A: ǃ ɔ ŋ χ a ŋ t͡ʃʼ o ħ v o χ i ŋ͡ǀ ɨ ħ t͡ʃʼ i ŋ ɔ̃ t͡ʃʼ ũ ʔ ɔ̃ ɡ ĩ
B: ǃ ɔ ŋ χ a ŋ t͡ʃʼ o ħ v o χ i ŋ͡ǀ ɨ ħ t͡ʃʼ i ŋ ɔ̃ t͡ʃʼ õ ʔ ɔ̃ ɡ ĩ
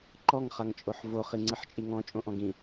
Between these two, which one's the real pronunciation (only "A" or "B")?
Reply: B